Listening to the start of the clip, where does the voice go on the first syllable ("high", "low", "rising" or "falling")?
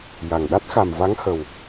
low